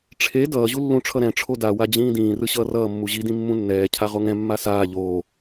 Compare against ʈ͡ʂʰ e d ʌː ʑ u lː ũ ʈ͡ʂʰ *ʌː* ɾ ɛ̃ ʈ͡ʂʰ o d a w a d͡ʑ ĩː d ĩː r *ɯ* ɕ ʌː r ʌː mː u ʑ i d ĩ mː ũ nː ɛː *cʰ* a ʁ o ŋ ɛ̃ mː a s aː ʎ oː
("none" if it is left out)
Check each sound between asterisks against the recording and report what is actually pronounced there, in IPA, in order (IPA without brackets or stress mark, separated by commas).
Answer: ʌ, ɯ, cʰ